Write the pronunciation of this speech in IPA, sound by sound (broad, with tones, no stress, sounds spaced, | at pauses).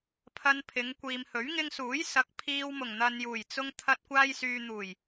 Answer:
pʰ ɐ˧ n pʰ ɪ˨˧ ŋ kʷ iː˨ m h ɵ˨˥ ɥ ŋ ɪ˧ ŋ s uː˨˥ j s ɐ˨˥ k̚ pʰ iː˧ w m ʊ˨˩ ŋ n̪ ɐ˨ n j uː˨˩ j t͡s ʊ˧ ŋ t̪ʰ ɐ˧ t̚ kʷ aː˧ j s yː˨ n̪ uː˨˩ j